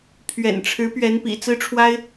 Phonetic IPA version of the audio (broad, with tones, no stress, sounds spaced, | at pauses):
pʰ ɥ ɛ̰˨˩ n ʈ͡ʂʰ ɻ̩˧˥ p ɥ ɛ˧˥ n p ḭ˨˩ t͡s ɹ̩˥ ʈ͡ʂʰ w a˥ ɪ̯